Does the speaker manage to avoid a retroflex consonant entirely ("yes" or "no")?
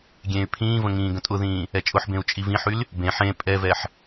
yes